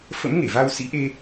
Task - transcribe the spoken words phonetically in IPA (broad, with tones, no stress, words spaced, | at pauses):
fə̰˧˥m ŋe˧˩va˧w sḭ˧˥ʔe˧